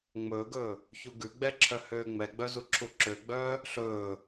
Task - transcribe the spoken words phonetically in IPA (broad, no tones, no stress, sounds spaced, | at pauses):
ŋ͡m ɵː ɡ ɵː | ç u ɡ ʉ ɡ͡b ɛ ǁʰ œ h øː ŋ͡m ɛ ɡ͡b œ z u ǁʰ u ǁ ø ɡ͡b œː | ɬ ɵː